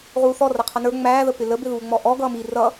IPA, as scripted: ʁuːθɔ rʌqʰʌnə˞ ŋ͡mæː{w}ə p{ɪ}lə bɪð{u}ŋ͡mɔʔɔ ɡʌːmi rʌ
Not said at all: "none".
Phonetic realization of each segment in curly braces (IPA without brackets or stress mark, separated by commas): ð, ɪ, uː